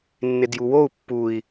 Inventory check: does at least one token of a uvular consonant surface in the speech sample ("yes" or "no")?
no